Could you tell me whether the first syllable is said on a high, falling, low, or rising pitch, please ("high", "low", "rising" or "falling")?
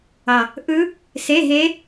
low